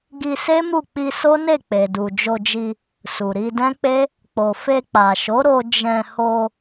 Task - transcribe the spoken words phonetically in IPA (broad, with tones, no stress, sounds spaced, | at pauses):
ɡ i˧ s e˦ m u˦˨ k͡p i˧ s o˦ n e˦˨ k͡p e˨ d u˨ d͡ʒ o˧ d͡ʒ i˧ | s u˨ ɾ i˧ d ɛ̃˦ k͡p e˦ | k͡p o˨ f e˧ k͡p a˨ ʃ o˨˦ ɾ o˧ d͡ʒ ɛ̃˧ h o˧